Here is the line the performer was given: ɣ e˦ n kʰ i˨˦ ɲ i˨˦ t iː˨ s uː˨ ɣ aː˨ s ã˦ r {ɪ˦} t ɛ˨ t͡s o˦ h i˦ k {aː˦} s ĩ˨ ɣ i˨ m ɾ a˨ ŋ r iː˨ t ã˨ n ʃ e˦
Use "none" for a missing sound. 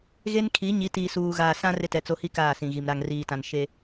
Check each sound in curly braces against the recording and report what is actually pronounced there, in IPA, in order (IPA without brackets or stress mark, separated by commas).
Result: ɪ˦, aː˦˨